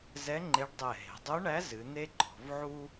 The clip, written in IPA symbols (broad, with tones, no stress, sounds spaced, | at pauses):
z ɛ˧˥ ŋ͡ǃ e˧˥ ɖ dˤ ɛ˧˩ ɦ e̤˩˧ dˤ u˧˥ ɳ æ˧˥ z ɨ˩˧ n̪ e˥ ǃ ɔ̤˩˧ v ʕ u˥